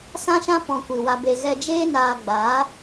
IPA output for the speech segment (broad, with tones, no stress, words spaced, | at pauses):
sã˦ʃã˦ pɔ̃˧kʷi˨wa˧be˧ ɣɛ˧d͡ʒeː˦ naː˧ɡ͡baː˨˦